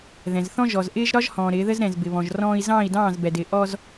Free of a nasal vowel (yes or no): no